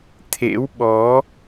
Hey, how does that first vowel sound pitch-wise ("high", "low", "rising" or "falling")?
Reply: rising